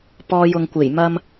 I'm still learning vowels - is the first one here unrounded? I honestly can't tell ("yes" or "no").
no